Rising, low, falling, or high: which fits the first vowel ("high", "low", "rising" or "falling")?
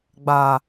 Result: low